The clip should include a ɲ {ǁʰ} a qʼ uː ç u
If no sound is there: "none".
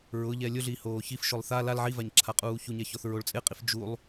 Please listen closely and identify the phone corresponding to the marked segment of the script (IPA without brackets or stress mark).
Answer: ǁʰ